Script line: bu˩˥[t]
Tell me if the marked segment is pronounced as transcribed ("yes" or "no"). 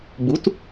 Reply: yes